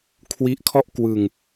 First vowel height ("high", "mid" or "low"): high